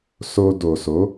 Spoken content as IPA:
s o˧ d o˨ s o˨˦

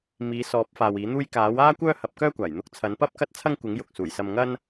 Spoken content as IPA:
m iː˨˧ s ɔː˨˥ p̚ f aː˨ w iː˨˥ n̪ uː˥ j k aː˨˥ w aː˥ kʷ œː˥ h ɐ˨˥ p̚ k œː˥ kʷ aː˨˩ j n̪ ʊ˧ k̚ t͡sʰ ɐ˨˥ n p ɐ˥ p̚ k ɐ˥ t̚ t͡sʰ ɐ˥ ŋ kʷ ɪ˨˥ ŋ j ʊ˨ k̚ s uː˨˩ j s ɐ˧ m ŋ ɐ˥ n

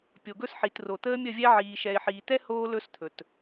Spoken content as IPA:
pʲ o˨ ɡ ɵ˦ s ħ i˨ t r o˨ t̪ əː˦ mʲ ə˦˨ vʲ ɛ˦ ʕ iː˨ ʃ ɛ˨ ɪ̯ ħ iː˨ t̪ ɛ˦ h oː˦ l ɵ˦ s t̪ʰ ɵ˨ t

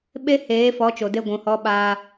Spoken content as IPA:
ɓ e˦ h eː˨˦ f ɔ˨˦ t͡ʃ o˨ d e˧ ɡʷ ũ˨ h ɔ˧ ɓ aː˧

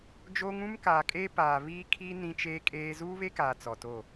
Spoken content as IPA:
d͡ʒ oː˦ ŋ ũ˦ m k aː˨ kʼ eː˦ p aː˨ β iː˦ kʰ i˦ n ĩ˦ t͡ʃ eː˦ kʼ eː˦ z uː˦ β e˦ k aː˨ t͡s ɔ˨ t o˦˨

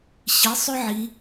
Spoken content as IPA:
ɕ i˩˧ sˤ ʏ˧ ʕ i˩˧

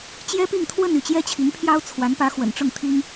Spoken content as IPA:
t͡ɕ j ɛ˥ p i˥˧ ŋ t̪ʰ w ə˥˧ n y˥˩ t͡ɕ j ɛ˥ t͡ɕʰ i˧˥ ŋ pʰ j ɑ˥ ʊ̯ t͡sʰ w a˧˥ n p ä˧˥ x w ə̰˨˩ n ʈ͡ʂ ʊ˥˩ ŋ t̪ʰ i˥ ŋ

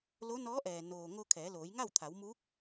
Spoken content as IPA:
l o˧˥ n ɔː˧˥ ʔ ɛː˩ n oː˩ ŋ o˧ kʰ ɛː˩˧ l oː˩˧ j ŋ a˥˨ w t̪ʰ a˩˧ w m uː˧˥ k̚

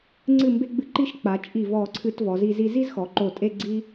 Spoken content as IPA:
ŋ͡ǀ ɨ˧˩ m b e˧ ɡ͡b ɨ˧ ǃ i˥˧ ʃ k͡p a˩˧ t͡ʃʼ i˧˩ v ɔ˧˩ ǀʰ ɨ˧ t v ɔ˩˧ z i˧ z i˧ z i˥ z x ɔ˩˧ ǃ o˧˩ tʼ e˥˧ ɡ͡ǀ i˥

